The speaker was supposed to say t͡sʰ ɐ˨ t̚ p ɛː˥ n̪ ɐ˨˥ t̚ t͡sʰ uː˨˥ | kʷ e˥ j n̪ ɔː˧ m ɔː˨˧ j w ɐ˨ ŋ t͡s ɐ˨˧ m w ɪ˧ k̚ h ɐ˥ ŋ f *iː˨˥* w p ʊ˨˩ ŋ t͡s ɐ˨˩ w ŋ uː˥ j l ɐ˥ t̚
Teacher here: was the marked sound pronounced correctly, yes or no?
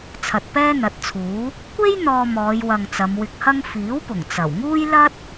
yes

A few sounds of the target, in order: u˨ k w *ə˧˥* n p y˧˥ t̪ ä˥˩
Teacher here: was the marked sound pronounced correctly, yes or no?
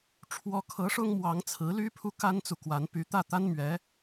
no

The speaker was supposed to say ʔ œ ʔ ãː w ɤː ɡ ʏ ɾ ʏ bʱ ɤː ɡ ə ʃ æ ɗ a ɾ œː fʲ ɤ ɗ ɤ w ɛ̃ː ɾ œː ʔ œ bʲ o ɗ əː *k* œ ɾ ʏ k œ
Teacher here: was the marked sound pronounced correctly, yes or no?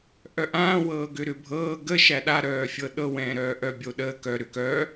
yes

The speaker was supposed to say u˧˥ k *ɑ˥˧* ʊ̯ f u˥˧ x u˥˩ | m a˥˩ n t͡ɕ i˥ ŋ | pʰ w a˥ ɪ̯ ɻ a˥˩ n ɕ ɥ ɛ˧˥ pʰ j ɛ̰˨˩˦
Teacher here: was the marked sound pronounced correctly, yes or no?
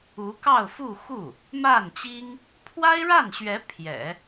yes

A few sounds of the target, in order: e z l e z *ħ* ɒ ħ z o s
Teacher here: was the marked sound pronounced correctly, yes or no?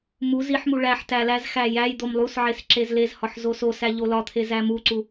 no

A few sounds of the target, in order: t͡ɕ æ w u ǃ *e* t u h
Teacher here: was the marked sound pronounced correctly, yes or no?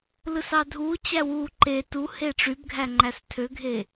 yes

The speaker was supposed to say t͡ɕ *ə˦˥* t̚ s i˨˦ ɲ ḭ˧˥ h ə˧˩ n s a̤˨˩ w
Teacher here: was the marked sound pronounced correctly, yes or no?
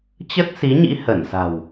yes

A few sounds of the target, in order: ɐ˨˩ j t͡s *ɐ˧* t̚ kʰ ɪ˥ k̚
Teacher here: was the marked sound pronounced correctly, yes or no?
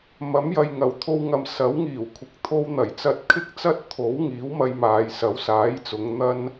yes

